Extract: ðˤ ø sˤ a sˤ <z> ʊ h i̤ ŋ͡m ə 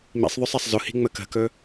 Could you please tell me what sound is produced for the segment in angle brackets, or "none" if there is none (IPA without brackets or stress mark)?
z